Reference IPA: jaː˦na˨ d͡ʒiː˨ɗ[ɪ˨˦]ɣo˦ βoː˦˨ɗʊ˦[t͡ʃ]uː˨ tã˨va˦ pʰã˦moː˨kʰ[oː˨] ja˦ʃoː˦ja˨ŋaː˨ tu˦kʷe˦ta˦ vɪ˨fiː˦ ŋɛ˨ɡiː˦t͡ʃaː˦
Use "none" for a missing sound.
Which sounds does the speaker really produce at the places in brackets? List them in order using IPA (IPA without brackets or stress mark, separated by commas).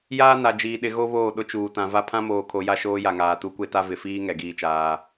ɪ˨˦, t͡ʃ, o˨